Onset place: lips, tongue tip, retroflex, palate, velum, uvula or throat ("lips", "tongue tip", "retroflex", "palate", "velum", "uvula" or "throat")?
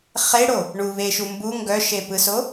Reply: uvula